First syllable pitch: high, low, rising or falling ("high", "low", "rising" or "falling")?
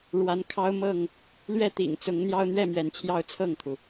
rising